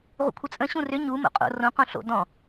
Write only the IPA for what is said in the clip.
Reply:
ʁ ṵ kʷʰ ə t͡sʼ ə̃ ɕ ũ r ʏ ɲ u m o̰ qʼ o̰ r õ q õ ɬ o̰ d ɔ̃

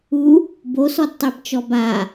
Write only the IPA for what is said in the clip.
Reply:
u | b o s ɔ d tˤ e b t͡ʃ ɔ b a

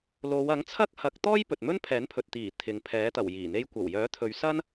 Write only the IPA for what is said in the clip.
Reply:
l o˨˧ w ɐ˨˥ ŋ t͡sʰ ɐ˥ k̚ h ɐ˨˥ k̚ t̪ ɔː˥ j p ɵ˨ t̚ m ɵ˥ n pʰ ɛː˨˥ n pʰ ɵ˨ t̚ t̪ iː˨˩ t̪ʰ ɪ˨ ŋ pʰ ɛː˨˥ t̪ ɐ˨˩ w j iː˨˩ n̪ e˧ j kʷ ɐ˨˩ w j œː˨˥ t̪ʰ ɵ˨˧ ɥ s ɐ˥ n

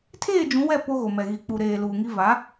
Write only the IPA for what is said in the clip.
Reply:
tʰ eː˦˨ d͡ʒ ũ˨˦ w ɛ˦˨ p o˦ ɣ o˨ m ɛ˨ ɣ i˨ k͡p u˨ ɾ eː˨ l uː˨ ŋ i˦ v a˨˦

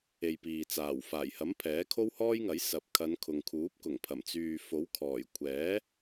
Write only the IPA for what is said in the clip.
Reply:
e˨ j p iː˨ t͡s aː˨˩ w f aː˨˩ j h ɐ˨˥ m pʰ ɛː˨˥ kʰ o˥ w h ɔː˥ j ŋ ɐ˨˥ j s ɐ˨ p̚ kʰ ɐ˨˧ n kʰ ʊ˨ ŋ kʰ uː˨˥ p̚ k ʊ˨˩ ŋ pʰ ɐ˨˩ m t͡s yː˨ f o˨˥ w kʰ ɔː˨˩ j kʷʰ ɛː˨˥

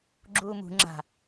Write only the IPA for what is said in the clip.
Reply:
ɡ͡ǁ uː m ṳ ŋ͡ǁ a̤

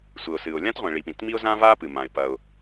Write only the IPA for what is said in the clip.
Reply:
sʷ ɘ˩ ʊ̯ s ɨ˩ ʊ̯ lʲ ã˥ t ʁʷ ĩ˩ ɭ i˩ p ĩ˩ t m i˥ ʊ̯ z ã˥ v a˥ p ɨ˩ m ã˩ ɪ̯ p ɐ˩ ʊ̯

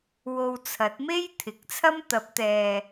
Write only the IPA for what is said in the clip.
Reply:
w o˧ w t͡sʰ ɐ˨˥ t̚ m e˥ j t̪ʰ ɪ˨˥ k̚ t͡sʰ ɐ˥ m t̪ ɐ˨˥ p̚ t̪ ɛː˨

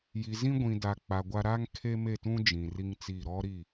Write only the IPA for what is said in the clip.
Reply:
j i˨ z ĩ˦ ɡʷ ĩ˨ d a˨ k͡p a˨ ɡʷ a˦ ɾ a˦ ŋ kʰ e˦ m e˦˨ t ũ˦ d͡ʒ ĩ˨ r i˦ ŋ t͡s i˦˨ ɾ ɔ˦ ɾ i˦˨

